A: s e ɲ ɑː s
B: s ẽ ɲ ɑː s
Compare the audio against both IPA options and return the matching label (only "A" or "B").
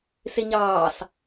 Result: A